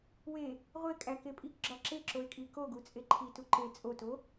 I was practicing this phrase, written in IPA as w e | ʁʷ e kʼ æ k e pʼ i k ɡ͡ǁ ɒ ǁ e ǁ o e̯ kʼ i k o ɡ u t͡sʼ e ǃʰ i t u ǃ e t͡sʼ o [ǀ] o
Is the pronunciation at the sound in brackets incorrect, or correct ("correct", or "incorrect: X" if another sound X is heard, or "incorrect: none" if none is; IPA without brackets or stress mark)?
incorrect: t